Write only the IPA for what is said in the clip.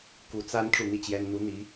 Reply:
ku˧˥ t͡sa˥n ʈ͡ʂu˥˧n̪i˥˩t͡ɕjɛ˥n n̪u˧˥ n̪i˧˥

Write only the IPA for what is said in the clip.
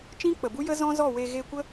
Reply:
t͡ʃĩ˦k͡pə˨bu˦jə˦ zɔ̃˦zɔ˦˨we˧ ɣe˧kʷə˦

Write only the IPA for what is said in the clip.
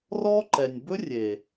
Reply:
rɔ˦ǃɛ˨nʲ bɵ˦rʲe˨

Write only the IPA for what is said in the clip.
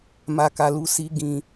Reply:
ma˨ka˨lu˨˦ si˧ ɡĩ˨

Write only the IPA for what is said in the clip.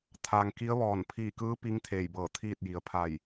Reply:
t̪ʰaː˩ŋki˧˥ə̯ʋɔː˧˩n pʰiː˧˩kɯː˧˥ pi˧˥ŋt̪ʰeː˧˩jbɤː˧˩ t̪ʰiː˥˨t̚ji˩ə̯pʰa˧˩j

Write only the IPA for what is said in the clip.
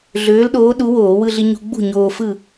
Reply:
ɮøː˨˥lɗoː˨˥ɗu˨˥ woː˧˩˧ wɯ˧ɮi˧ɲṳ˧ ɡ͡bṳ˥˨ɲoː˧fɯ˥˨

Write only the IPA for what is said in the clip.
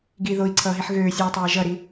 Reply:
ɡi ðoi̯ǀʰʌːɦiħ ɣøːsʲoːtˤeː ʒʌɾi

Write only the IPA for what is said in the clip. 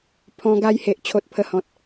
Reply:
pʰɔ̃˧ɡa˧jhe˨ʔ t͡ɕʰo˦t̚pʰə˥˧hɔ̃˦t̚

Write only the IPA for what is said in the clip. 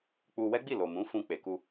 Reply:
k͡pu˧wɛ˦ɡ͡bi˦˨lo˨ mũ˨˦fũ˧ k͡pe˨ku˧

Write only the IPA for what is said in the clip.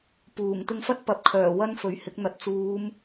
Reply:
puː˨˩ŋ t̪ɪ˧ŋfɐ˥t̚pɐ˨˥p̚ kʰœː˨˩wɐ˥nfɵ˨˥ɥhɪ˨˥k̚ n̪ɐ˨˥t̚t͡suː˨˧m

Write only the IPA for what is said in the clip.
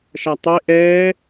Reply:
ʃatˤe ʔɛː

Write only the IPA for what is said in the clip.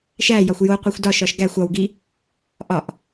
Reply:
ʃæjɒxʷ joqʷexʷ dɒʃɒʃ ɡæxʷ ɒwɡi | ʔɒʔ

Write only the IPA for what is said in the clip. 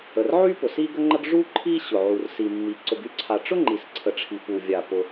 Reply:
ə˩rʕy˥ pʊ˩si˥ɡə˥ŋ͡ǃə˥ɡ ʐu˥ǃʰi˥ ɕʊ˩ʕu˩r si˩mːi˩ ǀʊ˩ɡy˥ǀʰa˩ ʈ͡ʂʊ˥ŋ͡ǃi˩sǀʰə˩ʈ͡ʂʰi˩ pu˩vʲa˩ pʊ˩

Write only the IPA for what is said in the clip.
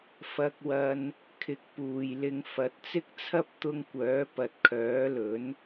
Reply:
fɐ˧k̚wɐ˧n | kʰɪ˨˥k̚puː˨j lɪ˧ŋ fɐ˨˥t̚t͡sɪ˥k̚t͡sʰɐ˥p̚ t̪ʊ˧ŋ kʷœː˨˥pɐ˨t̚kʰœː˨˥lɵ˨˥n

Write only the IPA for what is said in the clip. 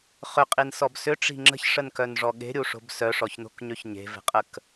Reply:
χʏqʼinsɔb sʏʈ͡ʂi̤ ŋ͡ǁə̤çʂənkœnʐɔ ɠe̤ɾʲuʂo̤b sœʂɔçno̤kɲøç ɲe̤ve̤qʼək

